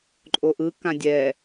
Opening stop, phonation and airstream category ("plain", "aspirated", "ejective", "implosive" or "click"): click